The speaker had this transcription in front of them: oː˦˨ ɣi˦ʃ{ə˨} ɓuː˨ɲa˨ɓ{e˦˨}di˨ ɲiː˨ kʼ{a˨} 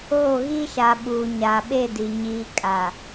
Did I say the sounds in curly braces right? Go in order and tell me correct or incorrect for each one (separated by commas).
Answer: incorrect, correct, correct